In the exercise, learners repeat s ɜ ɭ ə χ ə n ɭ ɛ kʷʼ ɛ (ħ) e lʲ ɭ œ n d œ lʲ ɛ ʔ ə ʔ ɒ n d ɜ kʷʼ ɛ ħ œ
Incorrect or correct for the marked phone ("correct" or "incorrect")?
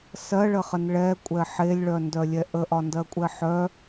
correct